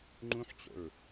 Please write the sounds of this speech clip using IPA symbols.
ŋ͡ǃ ũ ħ t͡ɕ o̰ ɹ

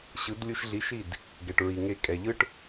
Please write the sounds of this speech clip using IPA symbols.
ɕ ɯ˨˦ d lʲ u˧ ʃ ɮ i˨˦ ʃ i˦˨ d | ɡ ɛ˨ ʈ ɹ i˨ ŋ e˧ kʼ ɛ˨ ʎ ɯ˦ ʈ

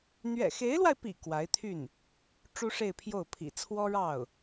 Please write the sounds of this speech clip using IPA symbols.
n̪ ɥ ɛ̰˨˩ x e˧˥ ɪ̯ l w a˧ ɪ̯ p ḭ˨˩ k w a˧˥ ɪ̯ t̪ʰ y˥˩ n | ʈ͡ʂ u˥ ʂ e˥˧ ɪ̯ pʰ j o˥˩ ʊ̯ pʰ ḭ˨˩ t͡sʰ w ɔ˥ ɻ ɑ˥˩ ʊ̯

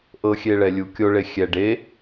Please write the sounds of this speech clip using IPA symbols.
ʔ ɤ xʲ e ɭ ɛ lʲ u kʲ o ɭ e xʲ ɛ ɖ e

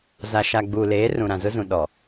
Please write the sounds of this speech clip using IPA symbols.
z a˨ ʃ a˨ ɡ͡b uː˨ l eː˨˦ r ũ˨ ɾ ã˨ z ʊ˦ z ũ˨ ɗ ɔ˨

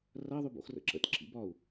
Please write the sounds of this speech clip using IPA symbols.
r ɐ ðˤ ʉ b o̰ x r ə̰ ǁ ə̰ t ǁ ḭ b ɒ u̯

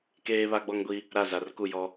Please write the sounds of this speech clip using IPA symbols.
k eː˦ β a˦ ɡ͡b ɔ˦ ŋ ɡʷ i˦ | ɾ a˦˨ z a˨ r k u˦˨ j ɔ˦

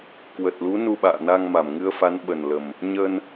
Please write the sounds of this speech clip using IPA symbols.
k w ə˨˩ t̚ l u˨˦ n u˧ ɓ a̰ː˧˨ n a˧ ŋ m a˧˩ m ŋ ɨ˧ ə̯ f a˨˦ n ɓ ə˨˩ n l ə˨˩ m | ɲ ə˧ n

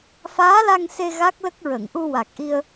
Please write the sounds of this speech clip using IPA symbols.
f aː˧˥ l a˧ ŋ s e˧ ɣ a˦˥ k̚ l ə˦˥ k̚ ɹ ə˨˩˨ ŋ ʔ u˧ w a˨˩ k̚ ʔ i˧ ə̯

